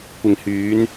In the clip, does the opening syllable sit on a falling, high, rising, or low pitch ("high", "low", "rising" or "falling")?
low